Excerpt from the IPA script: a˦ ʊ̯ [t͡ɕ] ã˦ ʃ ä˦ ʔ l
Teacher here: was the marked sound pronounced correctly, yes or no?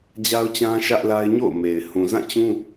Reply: yes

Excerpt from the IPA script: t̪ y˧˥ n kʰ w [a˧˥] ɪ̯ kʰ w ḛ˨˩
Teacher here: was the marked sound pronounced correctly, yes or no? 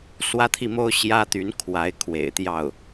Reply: yes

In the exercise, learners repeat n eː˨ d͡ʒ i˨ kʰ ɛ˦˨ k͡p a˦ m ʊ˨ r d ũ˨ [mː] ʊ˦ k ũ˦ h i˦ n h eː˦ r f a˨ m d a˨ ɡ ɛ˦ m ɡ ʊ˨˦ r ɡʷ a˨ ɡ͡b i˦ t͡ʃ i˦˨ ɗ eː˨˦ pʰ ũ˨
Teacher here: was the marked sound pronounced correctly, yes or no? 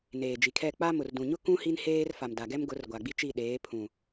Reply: no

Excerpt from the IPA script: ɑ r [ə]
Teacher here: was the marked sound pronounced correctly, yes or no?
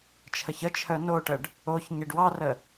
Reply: yes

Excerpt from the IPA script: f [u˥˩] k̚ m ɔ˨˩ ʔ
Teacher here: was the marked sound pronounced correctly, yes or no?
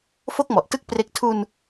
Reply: no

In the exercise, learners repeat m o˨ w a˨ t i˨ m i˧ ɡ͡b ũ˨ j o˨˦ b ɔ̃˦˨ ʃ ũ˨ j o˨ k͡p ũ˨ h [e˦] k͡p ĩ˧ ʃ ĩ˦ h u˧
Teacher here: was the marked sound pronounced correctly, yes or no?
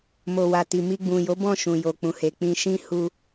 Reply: no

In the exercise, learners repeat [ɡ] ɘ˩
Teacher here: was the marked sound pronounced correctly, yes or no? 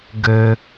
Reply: yes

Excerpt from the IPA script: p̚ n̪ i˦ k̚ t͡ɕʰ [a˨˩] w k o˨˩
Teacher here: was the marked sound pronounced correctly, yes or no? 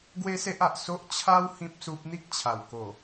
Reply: yes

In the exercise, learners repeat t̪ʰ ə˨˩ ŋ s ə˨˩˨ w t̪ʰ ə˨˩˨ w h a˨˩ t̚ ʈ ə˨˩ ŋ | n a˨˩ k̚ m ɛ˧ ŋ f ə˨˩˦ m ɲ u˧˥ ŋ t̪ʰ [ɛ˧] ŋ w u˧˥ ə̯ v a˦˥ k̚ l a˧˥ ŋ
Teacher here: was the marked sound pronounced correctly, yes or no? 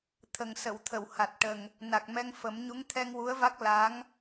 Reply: yes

